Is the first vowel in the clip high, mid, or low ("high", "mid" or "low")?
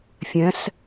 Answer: mid